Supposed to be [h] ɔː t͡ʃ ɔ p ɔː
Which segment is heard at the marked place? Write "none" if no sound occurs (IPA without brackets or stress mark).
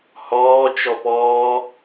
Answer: h